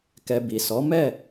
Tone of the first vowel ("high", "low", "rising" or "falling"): low